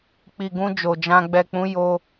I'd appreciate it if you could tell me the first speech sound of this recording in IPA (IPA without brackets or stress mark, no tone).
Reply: k͡p